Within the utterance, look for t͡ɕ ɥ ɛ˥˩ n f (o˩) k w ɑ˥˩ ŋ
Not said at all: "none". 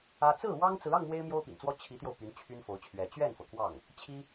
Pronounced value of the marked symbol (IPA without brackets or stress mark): ɤ˩